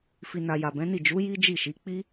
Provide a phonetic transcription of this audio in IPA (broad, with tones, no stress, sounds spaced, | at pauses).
f i˨ n a˨ j a˨ b ɛ̃˨˦ n i˦˨ d͡ʒ u˨˦ j i˦ d͡ʒ i˦˨ ʃ i˨˦ k͡p i˦